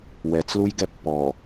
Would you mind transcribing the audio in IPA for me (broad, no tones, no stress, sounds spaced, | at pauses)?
w ɛ t͡s l u j ɡ ɛ pː ɔ